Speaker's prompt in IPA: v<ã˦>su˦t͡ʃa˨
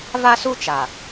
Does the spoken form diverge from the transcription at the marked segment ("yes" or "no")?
yes